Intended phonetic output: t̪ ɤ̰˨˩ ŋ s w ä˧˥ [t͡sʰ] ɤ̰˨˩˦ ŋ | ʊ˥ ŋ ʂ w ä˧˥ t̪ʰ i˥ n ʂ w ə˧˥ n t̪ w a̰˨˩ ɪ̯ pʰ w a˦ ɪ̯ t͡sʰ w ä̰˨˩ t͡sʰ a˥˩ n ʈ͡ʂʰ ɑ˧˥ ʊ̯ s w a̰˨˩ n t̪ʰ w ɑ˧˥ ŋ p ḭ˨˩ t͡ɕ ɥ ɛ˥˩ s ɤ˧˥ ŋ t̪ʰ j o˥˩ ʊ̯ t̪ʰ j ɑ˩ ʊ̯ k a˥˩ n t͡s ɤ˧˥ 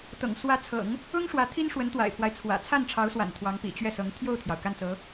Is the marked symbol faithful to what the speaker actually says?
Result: yes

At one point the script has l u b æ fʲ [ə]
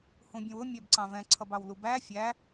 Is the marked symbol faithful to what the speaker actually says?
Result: no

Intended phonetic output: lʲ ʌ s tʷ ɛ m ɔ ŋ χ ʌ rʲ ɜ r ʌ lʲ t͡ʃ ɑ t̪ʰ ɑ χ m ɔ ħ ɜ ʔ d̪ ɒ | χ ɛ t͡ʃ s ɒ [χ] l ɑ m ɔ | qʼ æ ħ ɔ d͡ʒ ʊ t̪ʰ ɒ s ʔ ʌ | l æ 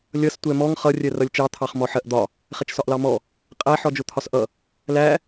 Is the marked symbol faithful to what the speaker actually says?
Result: no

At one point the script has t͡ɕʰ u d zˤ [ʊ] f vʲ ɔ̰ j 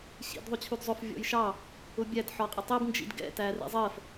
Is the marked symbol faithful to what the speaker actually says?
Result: yes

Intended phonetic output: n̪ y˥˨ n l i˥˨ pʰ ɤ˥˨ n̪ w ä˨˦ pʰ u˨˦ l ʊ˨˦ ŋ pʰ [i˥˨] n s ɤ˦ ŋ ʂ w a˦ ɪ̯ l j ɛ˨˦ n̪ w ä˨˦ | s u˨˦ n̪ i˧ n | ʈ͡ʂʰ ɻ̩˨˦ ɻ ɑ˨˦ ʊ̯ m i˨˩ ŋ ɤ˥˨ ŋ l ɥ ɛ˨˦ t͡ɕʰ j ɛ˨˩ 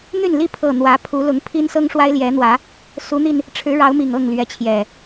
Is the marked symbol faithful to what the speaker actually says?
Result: no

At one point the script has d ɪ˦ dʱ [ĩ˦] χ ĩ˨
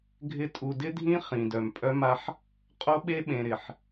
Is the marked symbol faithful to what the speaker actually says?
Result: yes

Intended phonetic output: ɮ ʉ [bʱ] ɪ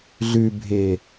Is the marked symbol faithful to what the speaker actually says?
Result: yes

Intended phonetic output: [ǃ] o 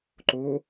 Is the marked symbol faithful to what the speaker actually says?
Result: yes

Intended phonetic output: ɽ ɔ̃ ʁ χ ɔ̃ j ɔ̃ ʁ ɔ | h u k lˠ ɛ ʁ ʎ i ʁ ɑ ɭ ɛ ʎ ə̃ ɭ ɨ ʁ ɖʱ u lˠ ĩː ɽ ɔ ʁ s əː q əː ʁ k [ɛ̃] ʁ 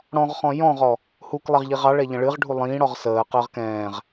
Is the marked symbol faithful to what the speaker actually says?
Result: no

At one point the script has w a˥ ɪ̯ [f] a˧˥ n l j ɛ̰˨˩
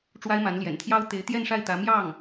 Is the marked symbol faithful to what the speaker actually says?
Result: no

